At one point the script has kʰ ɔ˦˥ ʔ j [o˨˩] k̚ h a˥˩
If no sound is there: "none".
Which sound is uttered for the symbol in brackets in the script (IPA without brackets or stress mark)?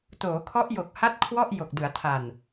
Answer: o˨˩